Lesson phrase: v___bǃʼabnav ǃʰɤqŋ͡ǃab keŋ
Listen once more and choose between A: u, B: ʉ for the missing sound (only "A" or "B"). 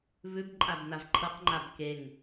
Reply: B